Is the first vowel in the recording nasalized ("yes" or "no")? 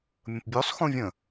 yes